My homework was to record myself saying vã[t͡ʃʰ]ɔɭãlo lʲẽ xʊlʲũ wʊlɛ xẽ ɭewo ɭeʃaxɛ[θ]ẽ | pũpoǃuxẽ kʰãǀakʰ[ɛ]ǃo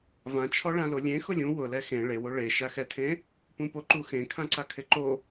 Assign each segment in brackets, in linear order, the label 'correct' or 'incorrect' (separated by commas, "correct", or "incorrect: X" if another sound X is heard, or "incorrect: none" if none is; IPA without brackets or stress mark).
correct, incorrect: tʰ, incorrect: ɪ